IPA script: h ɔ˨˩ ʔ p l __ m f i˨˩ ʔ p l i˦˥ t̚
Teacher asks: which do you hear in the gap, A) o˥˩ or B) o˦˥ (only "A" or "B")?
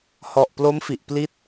B